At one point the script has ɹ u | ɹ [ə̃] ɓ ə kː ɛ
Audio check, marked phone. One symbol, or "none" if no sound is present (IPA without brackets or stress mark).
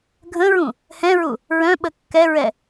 œ̃